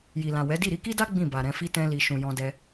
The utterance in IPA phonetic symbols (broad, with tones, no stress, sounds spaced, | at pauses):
j i˨ l ã˨ w ɛ˨˦ d i˦˨ ɾ i˧ k i˦ d a˦ ɡ͡b ĩ˦˨ b a˨ ɾ ɛ̃˧ f i˦ t ɛ̃˦ l i˧ ʃ ũ˨ j ɔ̃˧ d ɛ˧